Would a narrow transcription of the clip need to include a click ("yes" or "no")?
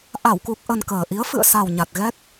no